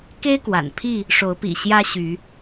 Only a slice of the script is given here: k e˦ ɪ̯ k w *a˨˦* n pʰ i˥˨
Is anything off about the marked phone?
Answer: yes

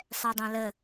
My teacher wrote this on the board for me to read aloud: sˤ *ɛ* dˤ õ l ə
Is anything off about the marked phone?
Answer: no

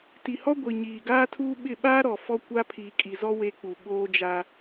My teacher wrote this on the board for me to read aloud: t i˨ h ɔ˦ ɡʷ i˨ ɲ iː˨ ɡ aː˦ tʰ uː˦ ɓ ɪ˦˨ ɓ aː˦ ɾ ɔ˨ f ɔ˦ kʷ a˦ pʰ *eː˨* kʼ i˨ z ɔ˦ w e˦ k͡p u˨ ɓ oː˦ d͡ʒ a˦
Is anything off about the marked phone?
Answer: yes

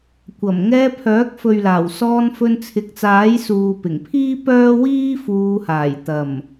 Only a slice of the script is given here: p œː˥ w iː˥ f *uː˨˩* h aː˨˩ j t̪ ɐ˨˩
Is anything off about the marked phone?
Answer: yes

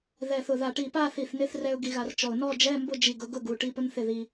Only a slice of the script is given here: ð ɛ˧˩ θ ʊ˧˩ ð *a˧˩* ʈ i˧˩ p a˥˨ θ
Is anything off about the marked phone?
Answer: no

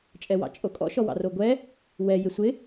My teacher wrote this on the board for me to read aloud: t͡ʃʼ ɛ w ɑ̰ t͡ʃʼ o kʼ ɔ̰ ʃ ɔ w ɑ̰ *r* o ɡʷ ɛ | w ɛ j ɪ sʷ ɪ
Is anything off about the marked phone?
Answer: no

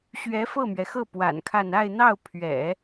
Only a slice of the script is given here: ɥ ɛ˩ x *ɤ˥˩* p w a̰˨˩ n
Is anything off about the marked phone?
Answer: no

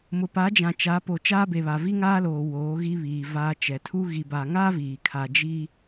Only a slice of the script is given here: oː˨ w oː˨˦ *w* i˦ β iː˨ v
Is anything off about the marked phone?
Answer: yes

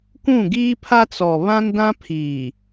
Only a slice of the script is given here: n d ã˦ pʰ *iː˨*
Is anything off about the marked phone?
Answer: no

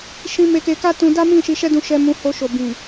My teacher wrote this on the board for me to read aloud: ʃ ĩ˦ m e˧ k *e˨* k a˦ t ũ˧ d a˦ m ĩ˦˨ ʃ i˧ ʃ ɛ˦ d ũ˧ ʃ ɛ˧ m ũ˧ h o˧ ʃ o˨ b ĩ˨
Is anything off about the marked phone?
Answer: yes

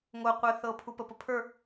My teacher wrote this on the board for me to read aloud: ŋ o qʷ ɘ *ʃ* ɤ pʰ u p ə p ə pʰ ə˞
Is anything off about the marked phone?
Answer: yes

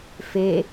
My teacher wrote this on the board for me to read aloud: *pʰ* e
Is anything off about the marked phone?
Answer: yes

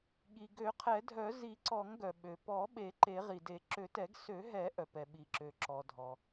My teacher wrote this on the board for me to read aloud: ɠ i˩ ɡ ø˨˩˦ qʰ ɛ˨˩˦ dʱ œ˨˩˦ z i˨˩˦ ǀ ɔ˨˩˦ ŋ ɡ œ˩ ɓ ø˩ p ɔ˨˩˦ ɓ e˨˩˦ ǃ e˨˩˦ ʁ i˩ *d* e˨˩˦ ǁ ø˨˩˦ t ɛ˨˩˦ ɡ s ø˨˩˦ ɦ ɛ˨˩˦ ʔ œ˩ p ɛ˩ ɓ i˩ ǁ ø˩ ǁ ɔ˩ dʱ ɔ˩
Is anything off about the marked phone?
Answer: no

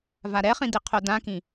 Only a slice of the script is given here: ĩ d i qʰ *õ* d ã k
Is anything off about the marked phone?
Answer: yes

